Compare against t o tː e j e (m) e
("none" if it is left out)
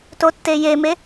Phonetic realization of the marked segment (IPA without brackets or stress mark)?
m